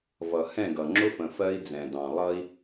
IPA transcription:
vʌ˨hɛ̃˦˨ɡʌ˨ ŋ͡ǁʊ˦fə̃˨ fɜ˦i̯d͡zɛ̃˨dɑ̃˨ lˠʌ˦i̯

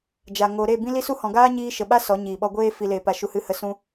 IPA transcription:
d͡ʒa˨ ŋo˨ ɾe˦˨ bĩ˦li˦su˦ hɔ̃˨ɡaː˦ɲiː˧ ʃə˨ɓa˦ sɔ˨˦ɲiː˨ɓɔ˧ɡʷeː˦ fi˨leː˨pa˨ ʃu˨hɨ˨hə˨ sũ˧

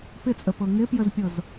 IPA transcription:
pɪt͡sʼəpɤ ŋɪpjəzpʲɤz

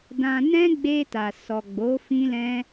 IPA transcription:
dã˧ nɛ̃˦ɡ͡be˧ ta˨ sɔ˨ɡ͡bo˨˦ fĩ˦lɛ̃˦

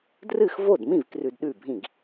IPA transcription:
drɨ˥˩xvo˥˩dmĩ˥˩v krʉ˧dɗʉ˥˩bʱĩ˥˩ɡ

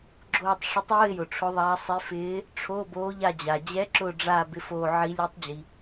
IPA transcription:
ɡ͡ǁoː˦˨tˤ ʂɪ˧˥tˤʊː˧˥˧ɪ̯jʊ˩ ʈ͡ʂʰʊ˧˥ðˤaː˧˥ sˤe˧˥fɪː˧˥ | ʈ͡ʂʰo˧˥˧boː˧˥ʎa˦˨ d͡ʑa˩d͡ʑɛ˧˥ ǁʊː˦˨ɖ͡ʐa˦˨ bɪ˧˥foː˦˨ʕi˧˥ lʲɛ˧˥tˤd͡ʑi˩

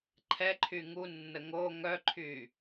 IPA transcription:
ǃʰɛǃʰy ŋunːə ŋo ŋœǃʰy

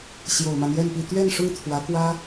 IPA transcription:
ɕjo˨˩ʊ̯ma˦njɛ˥˧npi˥˧ t̪ɥɛ˥˧nʂʊ˥˩ŋ t̪ʰwä˧˥kwä˥

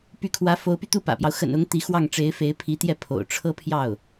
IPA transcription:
py˧˥kʰwä˧˥fo˧˥ʊ̯py˧ t̪u˥˩pä̰˨˩pjɑ˦ʊ̯ xə̰˨˩nʊ˧˥ŋ t̪i˧˥xwɑ˥˩ŋ ʈ͡ʂe˧˥ɪ̯fe˧˥ɪ̯pʰi˧˥t̪jɛ˥˩ pʰo̰˨˩ʊ̯ʈ͡ʂʰɤ˥pʰjɑ˥˩ʊ̯

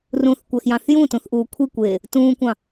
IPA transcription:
rũθkʷæxjɑ̃θ jũtũθʔuː kʷʰikʷeː | tũːkʷɑ̃

